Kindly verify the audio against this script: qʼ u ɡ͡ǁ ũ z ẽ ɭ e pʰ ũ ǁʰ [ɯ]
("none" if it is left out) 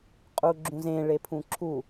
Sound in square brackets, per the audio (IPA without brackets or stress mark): u